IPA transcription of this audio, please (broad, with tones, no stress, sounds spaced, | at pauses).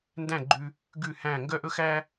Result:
n d æ̃˥˩ ɡ͡ǃ ʉ˧ | ɡ ʉ˥˩ h æ̃˥˩ ŋ ɡ œ˥ ʔ ɵ˥ x æ˥